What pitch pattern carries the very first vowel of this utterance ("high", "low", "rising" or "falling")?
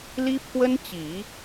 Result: high